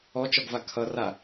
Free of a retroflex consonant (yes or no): yes